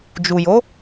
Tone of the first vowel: low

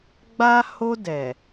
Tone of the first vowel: high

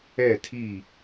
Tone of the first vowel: falling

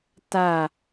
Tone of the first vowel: falling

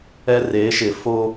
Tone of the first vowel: high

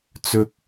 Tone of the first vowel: high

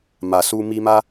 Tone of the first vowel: low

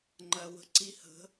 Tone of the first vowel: low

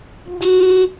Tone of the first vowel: high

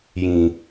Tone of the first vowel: low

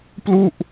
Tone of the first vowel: falling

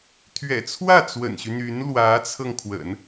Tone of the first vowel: low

